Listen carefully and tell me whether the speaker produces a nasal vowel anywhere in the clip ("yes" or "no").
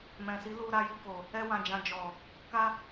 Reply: yes